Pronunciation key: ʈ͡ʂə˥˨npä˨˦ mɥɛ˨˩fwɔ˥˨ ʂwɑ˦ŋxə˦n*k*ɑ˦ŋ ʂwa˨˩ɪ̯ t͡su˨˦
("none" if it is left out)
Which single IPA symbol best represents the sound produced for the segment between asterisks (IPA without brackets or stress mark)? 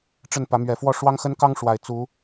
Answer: k